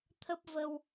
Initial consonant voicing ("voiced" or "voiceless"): voiceless